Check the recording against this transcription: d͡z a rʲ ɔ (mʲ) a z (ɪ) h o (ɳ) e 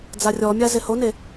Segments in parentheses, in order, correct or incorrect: correct, correct, incorrect: n

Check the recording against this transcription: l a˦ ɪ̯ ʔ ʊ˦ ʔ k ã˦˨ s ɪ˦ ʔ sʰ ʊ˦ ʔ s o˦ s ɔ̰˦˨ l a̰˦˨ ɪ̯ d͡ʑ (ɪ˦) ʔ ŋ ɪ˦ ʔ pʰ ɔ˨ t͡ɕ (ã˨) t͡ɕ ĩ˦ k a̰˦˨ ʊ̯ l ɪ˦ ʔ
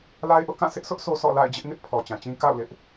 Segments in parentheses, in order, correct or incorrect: correct, correct

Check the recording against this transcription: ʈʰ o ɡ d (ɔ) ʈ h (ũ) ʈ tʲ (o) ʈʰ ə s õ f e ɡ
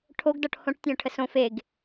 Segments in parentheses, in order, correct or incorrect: correct, incorrect: õ, incorrect: õ

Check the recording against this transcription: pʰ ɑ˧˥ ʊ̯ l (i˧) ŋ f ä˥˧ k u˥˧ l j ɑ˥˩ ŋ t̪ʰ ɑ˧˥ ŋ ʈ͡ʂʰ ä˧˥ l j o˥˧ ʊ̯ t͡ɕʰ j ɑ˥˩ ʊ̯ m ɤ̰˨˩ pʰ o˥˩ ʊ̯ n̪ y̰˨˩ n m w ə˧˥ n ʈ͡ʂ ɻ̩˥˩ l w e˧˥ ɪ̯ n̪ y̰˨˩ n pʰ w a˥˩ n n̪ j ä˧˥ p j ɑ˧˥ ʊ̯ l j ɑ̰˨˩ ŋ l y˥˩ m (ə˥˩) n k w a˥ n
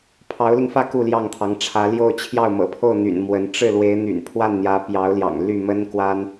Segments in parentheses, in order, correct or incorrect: correct, incorrect: ə˥

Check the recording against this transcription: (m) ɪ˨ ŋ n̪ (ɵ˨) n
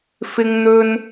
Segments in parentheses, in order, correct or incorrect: incorrect: f, correct

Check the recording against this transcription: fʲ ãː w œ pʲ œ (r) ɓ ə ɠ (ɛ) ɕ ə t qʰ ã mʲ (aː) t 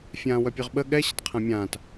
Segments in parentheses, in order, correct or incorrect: incorrect: ʁ, correct, incorrect: ãː

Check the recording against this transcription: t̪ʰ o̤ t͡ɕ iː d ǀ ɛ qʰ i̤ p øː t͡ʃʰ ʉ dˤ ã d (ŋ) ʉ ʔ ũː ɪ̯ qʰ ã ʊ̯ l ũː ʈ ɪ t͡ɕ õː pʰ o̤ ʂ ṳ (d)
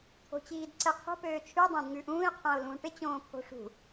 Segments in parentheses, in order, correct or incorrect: correct, incorrect: none

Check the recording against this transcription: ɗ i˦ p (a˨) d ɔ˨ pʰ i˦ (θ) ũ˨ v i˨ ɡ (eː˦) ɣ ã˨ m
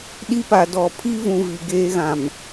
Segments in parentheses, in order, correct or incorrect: correct, incorrect: v, correct

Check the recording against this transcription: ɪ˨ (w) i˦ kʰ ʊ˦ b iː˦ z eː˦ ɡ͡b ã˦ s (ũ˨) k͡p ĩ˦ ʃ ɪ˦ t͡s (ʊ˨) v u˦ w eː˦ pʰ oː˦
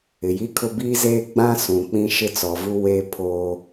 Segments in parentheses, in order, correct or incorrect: incorrect: j, correct, incorrect: ɔ˨

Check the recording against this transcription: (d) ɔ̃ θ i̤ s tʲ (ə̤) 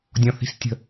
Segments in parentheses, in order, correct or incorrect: incorrect: dʲ, correct

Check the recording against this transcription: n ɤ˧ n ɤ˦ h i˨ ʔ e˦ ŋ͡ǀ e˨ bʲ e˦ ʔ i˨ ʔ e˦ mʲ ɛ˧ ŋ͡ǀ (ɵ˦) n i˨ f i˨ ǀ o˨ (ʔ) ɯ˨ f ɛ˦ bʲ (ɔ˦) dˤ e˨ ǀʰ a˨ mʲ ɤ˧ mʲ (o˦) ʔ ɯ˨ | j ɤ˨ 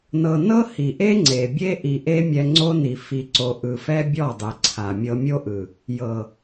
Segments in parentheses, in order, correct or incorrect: incorrect: o˦, correct, incorrect: ɔ˦˨, correct

